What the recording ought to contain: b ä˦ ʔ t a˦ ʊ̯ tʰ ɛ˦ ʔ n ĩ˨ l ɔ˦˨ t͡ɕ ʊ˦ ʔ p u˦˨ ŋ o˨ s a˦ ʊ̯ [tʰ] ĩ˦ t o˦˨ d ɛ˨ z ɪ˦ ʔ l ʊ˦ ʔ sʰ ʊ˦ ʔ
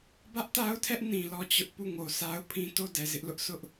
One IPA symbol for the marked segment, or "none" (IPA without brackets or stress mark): pʰ